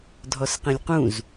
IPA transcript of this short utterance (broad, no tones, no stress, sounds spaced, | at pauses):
dʱ ɔ s q ẽ lʲ q ũ z